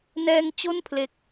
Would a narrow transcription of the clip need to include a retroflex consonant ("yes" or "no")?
no